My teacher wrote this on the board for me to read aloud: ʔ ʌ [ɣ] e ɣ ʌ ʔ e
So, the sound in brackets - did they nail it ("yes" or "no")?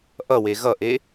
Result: no